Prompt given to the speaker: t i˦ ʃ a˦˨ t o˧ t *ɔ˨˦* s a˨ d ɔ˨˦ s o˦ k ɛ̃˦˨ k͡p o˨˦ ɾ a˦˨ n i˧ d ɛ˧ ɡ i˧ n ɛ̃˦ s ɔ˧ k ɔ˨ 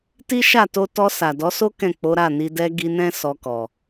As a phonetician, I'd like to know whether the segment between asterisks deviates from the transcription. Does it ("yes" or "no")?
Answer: yes